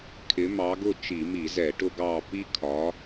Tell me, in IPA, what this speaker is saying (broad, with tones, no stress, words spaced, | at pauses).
kʰɪ˨˦ mɑ˨˦ɡʊ˦˨ t͡ʃi˧˩˧mi˧˩˧zɛ˧˩˧ʈʊ˦ ɡɑ˦˨ pi˦kʰɒ˨˦